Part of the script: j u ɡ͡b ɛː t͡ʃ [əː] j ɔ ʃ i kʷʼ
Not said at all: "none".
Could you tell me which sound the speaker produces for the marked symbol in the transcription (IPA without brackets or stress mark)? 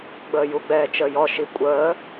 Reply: əː